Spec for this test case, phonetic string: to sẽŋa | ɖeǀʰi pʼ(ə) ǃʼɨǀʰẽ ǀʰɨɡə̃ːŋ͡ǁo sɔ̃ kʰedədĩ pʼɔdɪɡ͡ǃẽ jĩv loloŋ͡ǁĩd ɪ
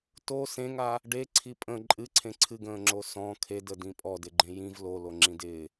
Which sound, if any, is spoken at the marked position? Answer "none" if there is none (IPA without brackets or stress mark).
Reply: ə̃